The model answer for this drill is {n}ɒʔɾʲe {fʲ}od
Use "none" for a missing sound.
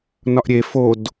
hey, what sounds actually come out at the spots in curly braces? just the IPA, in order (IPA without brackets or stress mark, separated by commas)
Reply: n, f